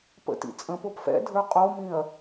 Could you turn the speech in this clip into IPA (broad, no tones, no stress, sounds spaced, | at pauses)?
p ə̰ t ḭ t͡sʼ ə̃ p o p f ɛ̰ dʱ ə˞ qʼ o m ĩ ɐ̯